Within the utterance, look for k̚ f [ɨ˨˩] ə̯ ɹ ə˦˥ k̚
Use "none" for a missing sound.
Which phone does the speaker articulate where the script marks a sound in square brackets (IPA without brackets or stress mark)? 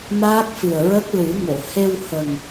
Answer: ɨ˨˩